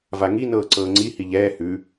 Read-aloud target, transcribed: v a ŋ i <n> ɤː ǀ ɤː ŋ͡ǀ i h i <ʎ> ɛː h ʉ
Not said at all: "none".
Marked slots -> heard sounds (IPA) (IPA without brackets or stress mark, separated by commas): n, ʎ